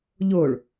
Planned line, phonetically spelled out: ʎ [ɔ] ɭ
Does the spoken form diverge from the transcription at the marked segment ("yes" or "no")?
yes